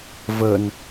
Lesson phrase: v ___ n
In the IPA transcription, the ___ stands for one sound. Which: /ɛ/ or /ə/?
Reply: ə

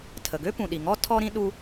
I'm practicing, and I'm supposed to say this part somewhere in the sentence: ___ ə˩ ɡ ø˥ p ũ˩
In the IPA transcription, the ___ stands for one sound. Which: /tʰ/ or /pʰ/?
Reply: tʰ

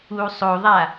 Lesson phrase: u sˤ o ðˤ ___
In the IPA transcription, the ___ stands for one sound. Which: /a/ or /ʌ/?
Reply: a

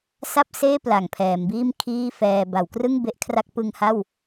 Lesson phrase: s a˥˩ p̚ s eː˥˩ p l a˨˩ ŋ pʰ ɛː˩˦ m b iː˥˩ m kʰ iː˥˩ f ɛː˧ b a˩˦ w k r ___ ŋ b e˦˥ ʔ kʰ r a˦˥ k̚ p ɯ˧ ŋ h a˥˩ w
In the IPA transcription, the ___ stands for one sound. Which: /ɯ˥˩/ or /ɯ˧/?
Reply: ɯ˥˩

